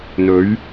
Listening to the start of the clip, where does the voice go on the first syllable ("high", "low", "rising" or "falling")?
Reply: rising